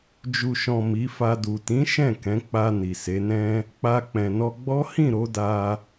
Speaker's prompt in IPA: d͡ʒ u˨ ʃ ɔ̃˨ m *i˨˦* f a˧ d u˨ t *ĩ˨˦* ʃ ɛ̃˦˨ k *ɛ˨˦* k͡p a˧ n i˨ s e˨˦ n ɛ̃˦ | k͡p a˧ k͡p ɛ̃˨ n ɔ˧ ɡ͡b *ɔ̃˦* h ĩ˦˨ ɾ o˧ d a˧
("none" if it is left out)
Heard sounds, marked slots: i˨˦, ĩ˨˦, ɛ̃˨˦, ɔ˦

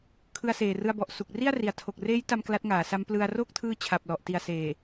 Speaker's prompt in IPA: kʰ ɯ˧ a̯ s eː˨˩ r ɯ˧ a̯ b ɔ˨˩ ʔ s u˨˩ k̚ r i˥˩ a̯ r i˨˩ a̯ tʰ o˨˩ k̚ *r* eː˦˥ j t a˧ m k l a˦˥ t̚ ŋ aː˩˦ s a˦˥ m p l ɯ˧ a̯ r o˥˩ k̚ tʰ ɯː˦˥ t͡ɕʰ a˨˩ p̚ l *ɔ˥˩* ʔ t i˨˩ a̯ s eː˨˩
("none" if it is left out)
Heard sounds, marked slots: r, ɔ˨˩

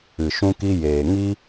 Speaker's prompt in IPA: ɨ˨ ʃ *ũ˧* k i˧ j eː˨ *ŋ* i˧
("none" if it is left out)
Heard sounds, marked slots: ũ˧, ŋ

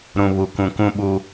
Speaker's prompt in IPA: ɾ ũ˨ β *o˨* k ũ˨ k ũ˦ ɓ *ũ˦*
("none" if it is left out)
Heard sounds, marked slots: u˨, u˦

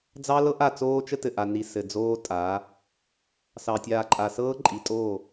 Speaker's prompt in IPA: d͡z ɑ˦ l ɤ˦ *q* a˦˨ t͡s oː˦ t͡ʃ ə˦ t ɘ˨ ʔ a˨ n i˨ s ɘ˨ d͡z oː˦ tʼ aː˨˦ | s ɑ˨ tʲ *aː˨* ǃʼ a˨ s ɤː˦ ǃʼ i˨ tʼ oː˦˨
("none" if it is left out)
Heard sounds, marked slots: ʔ, aː˨

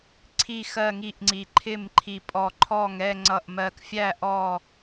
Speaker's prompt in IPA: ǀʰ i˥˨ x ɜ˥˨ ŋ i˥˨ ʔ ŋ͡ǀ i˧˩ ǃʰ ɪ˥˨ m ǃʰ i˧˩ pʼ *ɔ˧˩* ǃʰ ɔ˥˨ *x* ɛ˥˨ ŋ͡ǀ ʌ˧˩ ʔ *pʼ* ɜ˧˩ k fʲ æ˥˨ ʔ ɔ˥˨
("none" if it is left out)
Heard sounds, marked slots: ɔ˧˩, ŋ, m

